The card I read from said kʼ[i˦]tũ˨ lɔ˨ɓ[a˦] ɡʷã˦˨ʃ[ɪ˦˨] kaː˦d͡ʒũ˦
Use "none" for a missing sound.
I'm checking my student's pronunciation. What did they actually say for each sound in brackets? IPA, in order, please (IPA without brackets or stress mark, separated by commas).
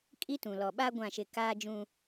i˦, a˦, ɪ˦˨